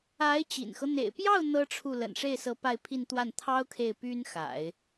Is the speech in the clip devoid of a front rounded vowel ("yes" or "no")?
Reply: no